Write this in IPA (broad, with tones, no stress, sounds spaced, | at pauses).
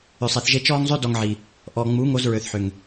ʏ˨ sˤ e˨ θ ʒ e˧ t͡ʃ ɔː˧ ŋ zˤ ø˦ d ɔ˧ ŋ ʕ i˨ | ʔ ɔ˨ ŋ͡m u˨˦ ŋ o˧ z ɹ ø˨ θ ħ ʏ˨ ŋ